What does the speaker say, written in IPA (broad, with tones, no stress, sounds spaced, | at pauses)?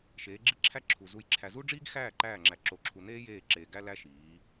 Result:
ʃ eː˨˦ ɡ͡ǁ i˦ ǁʰ æ˦ ǁʰ u˨ z u˨ j ǁʰ æ˨ z u˦ ɖ͡ʐ iː˦ ɡ x æː˦˨ ǃ æː˦˨ ŋ͡ǁ æ˨ ǁ o˨ ǁʰ u˨ n eː˦ j eː˦˨ ǁ eː˨ ɡ æ˦ l æ˦ ʃ iː˨˦